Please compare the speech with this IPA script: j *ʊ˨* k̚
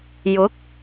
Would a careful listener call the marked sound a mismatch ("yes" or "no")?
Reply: yes